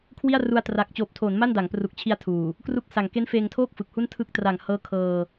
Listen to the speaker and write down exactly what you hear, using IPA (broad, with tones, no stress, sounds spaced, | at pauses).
kʰ w i˥˩ a̯ r u˧ a̯ t r a˨˩ k̚ t͡ɕ oː˨˩ p̚ tʰ oː˩˦ n m a˥˩ n d a˩˦ ŋ p r u˨˩ k̚ t͡ɕʰ i˧ a̯ tʰ uː˨˩ | k r u˦˥ k̚ s a˨˩ ŋ k e˦˥ n f eː˧ ŋ tʰ oː˥˩ k̚ f ɯ˨˩ k̚ h u˥˩ n tʰ ɯ˥˩ k̚ t r a˨˩ ŋ h ɤː˦˥ kʰ ɤː˧